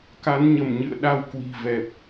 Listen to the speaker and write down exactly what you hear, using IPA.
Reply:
ka˨˦nɲə˧˩mɲɨ̰˧˨ə̯ ɗa˧w kwi̤˨˩vɛ˨˩p̚

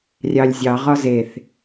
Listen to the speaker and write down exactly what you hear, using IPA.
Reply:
rʲɑlʲzʲɑ ʁɒzeθ

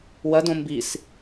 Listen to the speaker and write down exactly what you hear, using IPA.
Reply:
wɐdõ mbis

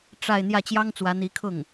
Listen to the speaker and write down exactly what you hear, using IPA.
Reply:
ʈ͡ʂa˥˧ɪ̯ n̪jä˥˩ t͡ɕjɑ˥ŋt͡swä˧˥n̪i˧˥kʰʊ˥˩ŋ

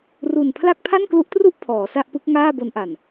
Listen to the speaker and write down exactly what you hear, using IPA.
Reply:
ru˨˩n pʰla˥˩k̚ pʰa˥˩nklu˦˥ʔtru˥˩ʔ pʰɔː˩˦sa˥˩ʔpɯ˦˥k̚ ŋaː˥˩bo˧nʔa˨˩n

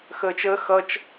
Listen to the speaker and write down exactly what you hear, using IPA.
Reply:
xəːt͡ʃəː xʌt͡ʃ

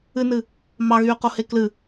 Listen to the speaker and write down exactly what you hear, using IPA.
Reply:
ɨnɨ | mɑɣyːqohe klɨ

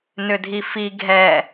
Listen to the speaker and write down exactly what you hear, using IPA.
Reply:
nʏdʱifi ɡʱɛ

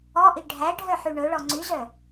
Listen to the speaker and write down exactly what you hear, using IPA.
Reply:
ɔʔi ɖʱæɖʱœ ħyɳɵɭɔ ŋ͡ǀyzœ

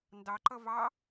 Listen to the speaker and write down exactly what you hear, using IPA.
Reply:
ndɑǃʌ vɑ

